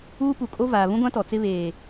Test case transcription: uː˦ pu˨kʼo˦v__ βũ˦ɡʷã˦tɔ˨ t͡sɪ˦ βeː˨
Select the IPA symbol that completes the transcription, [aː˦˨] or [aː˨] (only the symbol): aː˨